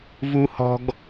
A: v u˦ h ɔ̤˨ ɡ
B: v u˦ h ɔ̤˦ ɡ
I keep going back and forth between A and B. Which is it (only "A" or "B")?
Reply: B